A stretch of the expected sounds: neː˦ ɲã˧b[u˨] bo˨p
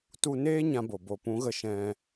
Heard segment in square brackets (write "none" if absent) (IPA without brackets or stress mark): o˨